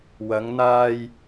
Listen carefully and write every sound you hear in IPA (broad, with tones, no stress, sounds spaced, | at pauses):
w ɐ˨˧ ŋ n̪ aː˧ j